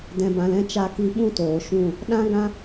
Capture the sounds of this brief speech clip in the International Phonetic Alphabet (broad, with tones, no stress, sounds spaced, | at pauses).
d ɛ̃˨ b ã˨ l ɛ̃˧ t͡ʃ a˧ k i˧ ɓ ũ˦ t oː˨ ʃ ũ˦˨ | ɗ ã˦ ɡ ã˦